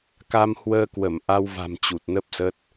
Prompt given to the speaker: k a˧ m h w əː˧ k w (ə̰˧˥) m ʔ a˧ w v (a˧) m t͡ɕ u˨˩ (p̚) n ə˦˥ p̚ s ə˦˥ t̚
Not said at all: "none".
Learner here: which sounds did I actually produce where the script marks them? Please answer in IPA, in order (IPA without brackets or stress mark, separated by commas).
ə˧˩, a̤˨˩, t̚